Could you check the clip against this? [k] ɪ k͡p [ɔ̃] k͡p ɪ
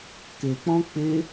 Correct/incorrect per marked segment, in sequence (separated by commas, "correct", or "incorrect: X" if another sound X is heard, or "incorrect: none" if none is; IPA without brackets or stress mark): correct, correct